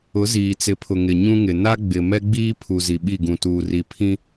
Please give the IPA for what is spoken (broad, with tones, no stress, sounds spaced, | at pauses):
ʊ˨˦ z iː˨ t͡s ɪ˨˦ pʰ ʊ˨ ŋ ɪ˨ ɲ ũ˦ ŋ ɪ˨ n a˦ ɡ͡b ɪ˨ m ɛ˦ ɡ͡b iː˦ pʰ u˨ z i˨ ɓ i˦˨ ɡ ũ˨ t uː˨ r i˨ pʰ ĩ˦